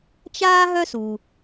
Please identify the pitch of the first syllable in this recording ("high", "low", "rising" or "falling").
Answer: high